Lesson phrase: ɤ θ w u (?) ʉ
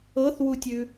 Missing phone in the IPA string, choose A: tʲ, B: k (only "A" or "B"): A